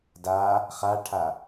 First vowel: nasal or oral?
oral